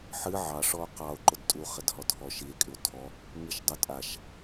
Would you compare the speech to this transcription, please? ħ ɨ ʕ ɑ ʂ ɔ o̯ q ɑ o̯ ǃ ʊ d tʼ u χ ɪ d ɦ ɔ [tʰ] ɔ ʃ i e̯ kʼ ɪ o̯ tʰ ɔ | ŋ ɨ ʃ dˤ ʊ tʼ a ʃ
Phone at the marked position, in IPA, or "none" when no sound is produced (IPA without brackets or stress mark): tʰ